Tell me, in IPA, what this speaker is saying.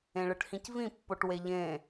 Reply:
ẽɭɯʈhĩcvĩ pːoʈweʎẽ

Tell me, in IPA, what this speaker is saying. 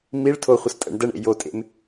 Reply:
miɭ tʰoχʷəs tʼə̰ɳ dəɳḛ jotʼḛm

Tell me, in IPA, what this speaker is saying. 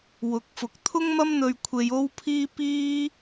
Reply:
wʊ˨˥k̚fʊ˨˥k̚ t̪ʰʊ˥ŋmɐ˥mn̪ɵ˧ɥkʷʰe˧j o˥wpʰiː˥ piː˥

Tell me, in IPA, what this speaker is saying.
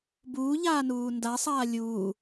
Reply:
buːʎaːnuː ndasˤaː lʲuː

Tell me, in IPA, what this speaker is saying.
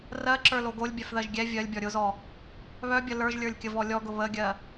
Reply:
rɜǁə˞lo ɡolʲbʲœfðɜʒ ɡʲɛ vʲɜlʲbʲɔ ɾʲʊzɔ | βœbʲə lə˞ʒlʲə˞lʲkʲəvɔ lʲɔɡʊ βəɡʲɜ

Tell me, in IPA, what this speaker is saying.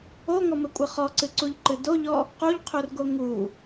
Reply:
oŋɔmɘkʷʼɘ χɔǀɨǀuʎǃɨ doʎɔ | quʎqʰurɡo ŋu

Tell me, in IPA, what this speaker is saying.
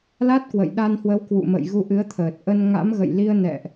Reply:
la˦˥t̚kwə̰˧˨jɗa˧nhwə˨˦w kwṵ˧˨ mə̰˧˨j ɣu˧ʔɨ˨˦ə̯t̪ʰəː˨˩t̚ ʔə˧nŋa̰˧˥mɣə̰˧˨jli˧ə̯ nɛ̰˧˨ʔ

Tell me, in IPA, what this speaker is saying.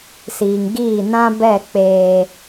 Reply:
siː˨ŋɡiː˦˨ nã˦ bɛ˦˨k͡peː˦

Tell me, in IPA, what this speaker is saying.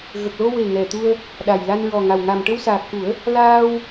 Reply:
ɣə˨˩k̚lo˧we˨˩ ŋɛ˨˩t̪u˧ə̯ | ɗa˨˩jla˧nɹɔ˨˩ŋa˨˩w ŋa˨˩mʈə˧wsaː˨˩k̚xu˨˩˦ə̯ | laː˧w

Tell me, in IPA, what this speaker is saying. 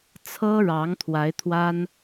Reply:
t͡sʰɤ˦ɻɑ˨˦ŋ t̪ʰwa˨˦ɪ̯t̪ʰwa˦n

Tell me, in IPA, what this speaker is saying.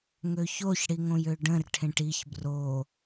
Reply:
ŋøçoç ɽiŋõjøɖə̃r ʈʰẽʈiç bro

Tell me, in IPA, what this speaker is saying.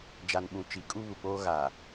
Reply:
d͡ʒa˨nɓũ˨t͡ʃi˨˦kʼu˦ βu˨k͡poː˦ ɣa˨

